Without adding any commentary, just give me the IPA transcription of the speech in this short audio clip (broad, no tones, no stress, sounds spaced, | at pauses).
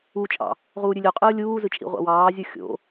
u t͡ʃʼ ɑ̰ | ʁ uː ɾʲ ʉ lʲ o qʼ ɯː lʲ uː z ɯ t͡ʃʼ ḭ ʁʷ ɑ̰ w ɑː zʲ u xʲ o̰